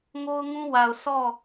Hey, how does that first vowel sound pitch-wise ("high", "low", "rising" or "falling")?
high